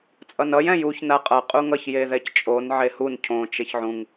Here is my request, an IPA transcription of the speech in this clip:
t͡sʼ ʌ n ʌ j ɛ̃ j u ç n a qʼ ʌ qʼ u ŋ ʌ ç j e ð ɛ c t͡ʃʼ o n ʕ e h u n cʰ õ t͡ʃ e ç ʕ ũ ŋ

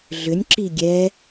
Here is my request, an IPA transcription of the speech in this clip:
ɮ ʏ nʲ ǁ i ɡʲ ɛ

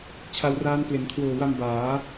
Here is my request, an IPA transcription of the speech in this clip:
t͡ɕʰ a˧ w r aː˦˥ n p l e˩˦ n kʰ w oː˨˩ w a˧ m b aː˩˦

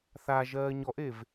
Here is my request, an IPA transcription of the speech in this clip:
θ a ʒ ɜː ɲ ɔ ʔ e v

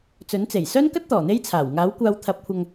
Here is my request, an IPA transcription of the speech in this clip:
t͡s ɵ˨˥ n t͡s e˨˩ j s œː˥ n k ɐ˥ t̚ t̪ ɔː˨˩ n̪ e˥ j t͡sʰ aː˨˩ w ŋ aː˨˥ w kʷ aː˧ w t̪ʰ ɐ˨˥ p̚ kʷʰ ɐ˨ ŋ

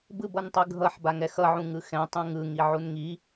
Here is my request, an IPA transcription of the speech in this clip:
b ɯ b ʌ n tˤ ɯ ɡʱ ʌ ħ b a ŋ ɛ x ʌ ʕ ũ ŋ ɯ x ɛ̃ tˤ ũ ŋ ɯ ŋ i ʕ u n ŋ i

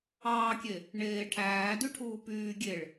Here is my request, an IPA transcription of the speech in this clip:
ɑː kʲ e | ɳ eː ʈʰ æː d y ʈʰ uː p yː ɡʲ e ɭ

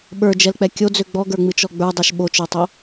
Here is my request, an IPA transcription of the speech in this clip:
ɓ ə˞ d͡ʒ ɛ l k͡p ɛ kʲ o d͡z ø ɡ͡b ɔ ɡ ə˞ ŋ͡m ɨ t͡ʃ ɔ ɡ͡b ə˞ dˤ ɛ ʃ ɓ o t͡ʃ ə˞ tˤ o

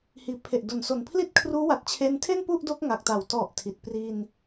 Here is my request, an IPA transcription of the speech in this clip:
h iː˩˦ pʰ e˨˩ ʔ d o˨˩ n s o˨˩ n pʰ l i˥˩ t̚ kʰ r uː˦˥ w a˨˩ t̚ t͡ɕʰ e˧ n tʰ e˥˩ n p u˥˩ ʔ d o˦˥ k̚ ŋ a˨˩ k̚ t a˨˩ w t ɔ˨˩ ʔ tʰ i˨˩ t̚ p r i˧ n

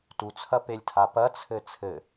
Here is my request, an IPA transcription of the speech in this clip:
t u t͡sʰ ɐ p e lʲ tʰ a p ɐ t͡sʰ ɘ t͡sʰ ɘ

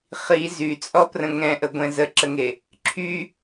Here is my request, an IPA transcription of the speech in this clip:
χ i z y t͡sʼ ɔ p r ə̃ ŋ ɛ̃ ʔ ə ɡʷ ɛ̃ z ə ǁ ə ŋ e | ǁʰ y

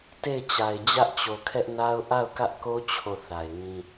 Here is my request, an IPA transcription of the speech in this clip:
t e˦˨ ɪ̯ t͡ɕ a˨ ɪ̯ d͡ʑ ä˦ ʔ t͡ɕ o˨ kʰ ɛ˦ ʔ n a˦ ʊ̯ ʔ a˦˨ ʊ̯ k ä˦ ʔ k o˦ t͡ɕʰ o˦˨ θ a˨ ɪ̯ ŋ ĩ˦

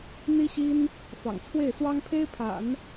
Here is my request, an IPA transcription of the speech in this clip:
n̪ i˥ ɕ i˥ n | f ɑ̰˨˩ ŋ t͡sʰ w e˥˩ ɪ̯ s w ɑ˥ ŋ pʰ e˥ ɪ̯ pʰ a̰˨˩˦ n

